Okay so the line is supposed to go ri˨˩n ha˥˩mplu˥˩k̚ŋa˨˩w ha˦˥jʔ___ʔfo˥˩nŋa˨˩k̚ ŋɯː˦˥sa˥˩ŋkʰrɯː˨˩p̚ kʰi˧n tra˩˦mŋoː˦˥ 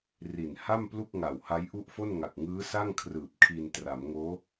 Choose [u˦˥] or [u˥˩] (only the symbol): u˥˩